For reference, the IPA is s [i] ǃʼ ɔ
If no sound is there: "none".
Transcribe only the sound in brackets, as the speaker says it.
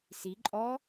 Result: i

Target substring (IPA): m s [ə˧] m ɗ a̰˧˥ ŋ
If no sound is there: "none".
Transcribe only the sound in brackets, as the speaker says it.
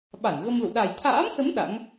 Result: ə˨˦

